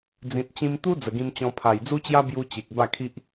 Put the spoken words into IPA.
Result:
d͡zĩ˨t̚t͡ɕĩ˧mt̪u˦ d͡zə˨˩ɡĩ˧mt͡ɕɔ̃˧ pʰa˨˩jd͡zu˦t͡ɕja˦ bju˧ t͡ɕe˨k̚ ba˥˧kʰi˦ʔ

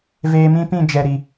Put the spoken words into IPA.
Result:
veː˧mĩ˦pĩ˦˨d͡ʒɛ˨ ɾi˨

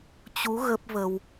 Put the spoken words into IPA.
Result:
t͡ɕu˨˦ ɣə˦˥p̚və˧w

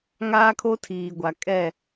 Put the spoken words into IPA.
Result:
ŋaː˦kʰo˦tʰiː˨ɡʷa˨ kʼɛ˦˨

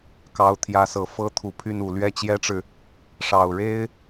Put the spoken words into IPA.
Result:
kɑ˧˥ʊ̯t̪ʰjä˧˥sɤ˨˩ fɤ˥ t̪ʰu˨˩pʰy˥˩nu˨˩ lɥɛ˥˩t͡ɕjɛ˥ʈ͡ʂɻ̩˨ | ʂɑ˨˩ʊ̯ɻe˥ɪ̯

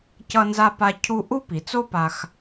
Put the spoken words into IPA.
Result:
cʌ˧nza˧pa˧cʰu˧ ʔu˥pi˩t͡so˥pa˧x

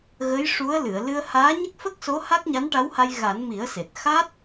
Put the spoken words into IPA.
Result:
ɣə˧˥jʂu˧˥ə̯ lɨ˨˩˨ə̯lɨ˧ə̯ haː˧˥ ɲə˦˥k̚fə˦˥k̚so˧˥ ha˦˥k̚ɲa˧˥nʈa˧˥wha˧j ɣa˨˩˦n mi˨˩˦ə̯se˨˩t̚ xa˦˥t̚

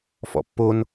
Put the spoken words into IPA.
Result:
fɔ̰pːon

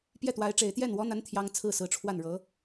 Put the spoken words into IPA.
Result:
pjɛ˥˩t̪wa˧˥ɪ̯ ʈ͡ʂe˨˩ɪ̯t̪jɛ˥˩nwɔ˧˥n̪a˧˥n t̪ʰjɑ˥ŋ t͡sʰɹ̩˥˩sɹ̩˧˥ʈ͡ʂʰwa˥˩nɻɤ˧˥

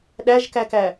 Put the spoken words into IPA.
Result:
ɗæʒkækæ

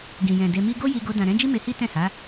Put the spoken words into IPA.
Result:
ɡĩ˨jɛ̃˨ de˧mi˦ ɡo˦ji˧ɡo˧ dã˨ɾɛ̃˨˦d͡ʒi˦ me˧hi˦ tɛ̃˦˨ha˨˦

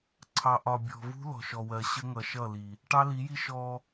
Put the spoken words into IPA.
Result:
ǀʰɑ˨ʔɒ˨ bʲɔ̤˨vṳ˦ lɔ̤˨ʃɔ˨wɜ˨ ɕə˦ ŋʌ˨ʃʌ˦˨li˨ | ʈɑ˦li˨˦ji˦ ʃɔ˦

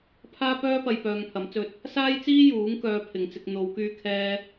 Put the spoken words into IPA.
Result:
pʰaː˥pœː˥pɐ˧j pœː˧ŋ pʰɐ˨˥mt͡sɵ˧t̚ | saː˥jt͡siː˥ juː˨˥ŋkœː˨˧ pʰɪ˨˧ŋt͡sɪ˧k̚ n̪o˨˧w kyː˧kʰɛː˧

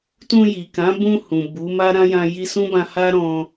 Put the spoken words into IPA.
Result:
tũ˧ji˨kã˨˦bũ˧ hũ˨bu˨˦ma˦ ɾã˦jã˧ ji˧sũ˦bã˧ ha˦ɾɔ̃˧

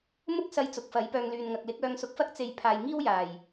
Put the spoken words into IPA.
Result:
mʊ˥k̚sɐ˧j t͡sʊ˨˥k̚fɐ˨˥jpœː˧ŋ lyː˨nŋɐ˨k̚lɪ˨˥k̚ œː˧ŋsʊ˧k̚fɐ˥k̚ t͡se˨j pʰaː˨j ŋiː˥wjaː˨˩j

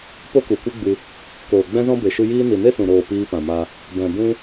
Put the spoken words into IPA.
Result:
po˦ku˨kʷɨ˦ɡ͡bɨ˧ | koː˨ɡ͡bɛ̃˦zɔ̃˦ be˨ʃɨ˧jiː˦ ni˨ne˦sũ˨ɾoː˨ piː˧pã˨ma˧ | bɛ̃˨bũ˦

